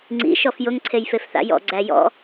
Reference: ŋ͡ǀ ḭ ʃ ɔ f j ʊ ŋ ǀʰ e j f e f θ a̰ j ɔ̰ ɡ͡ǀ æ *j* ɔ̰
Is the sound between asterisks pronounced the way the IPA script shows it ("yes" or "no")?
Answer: yes